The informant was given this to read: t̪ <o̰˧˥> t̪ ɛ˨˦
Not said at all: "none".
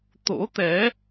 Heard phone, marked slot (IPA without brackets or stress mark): o̰˧˥